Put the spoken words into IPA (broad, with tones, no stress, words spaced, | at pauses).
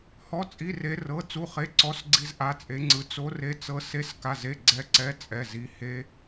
hɔ˧˥˧t͡sʼi˧˥˧ re˦˥rɤ˧˥˧ t͡su˧˥˧χe˧˥˧ǀɔ˦˥sɡ͡ǀi˦˥z ʔa˧˥˧t͡sʼe˦˥ŋ͡ǀɯ˦˥ t͡so˦˥re˦˥t͡sɤ˦˥ se˦˥ska˧˥˧ze˧˥˧ ɡ͡ǀɛ˦˥ǀɛ˧˥˧ t͡sʼɛ˧˥˧zi˦˥ he˦˥